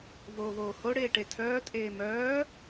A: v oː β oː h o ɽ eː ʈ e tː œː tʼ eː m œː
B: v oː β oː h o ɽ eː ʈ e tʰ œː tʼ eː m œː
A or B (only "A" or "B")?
B